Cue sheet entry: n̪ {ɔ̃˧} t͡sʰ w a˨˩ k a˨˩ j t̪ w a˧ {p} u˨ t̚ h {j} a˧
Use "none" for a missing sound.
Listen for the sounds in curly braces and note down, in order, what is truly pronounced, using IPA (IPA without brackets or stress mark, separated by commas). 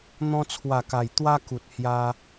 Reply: ɔ̃˧, k, j